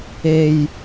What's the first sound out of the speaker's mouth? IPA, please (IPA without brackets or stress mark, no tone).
e